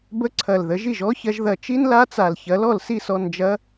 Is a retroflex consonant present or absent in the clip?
absent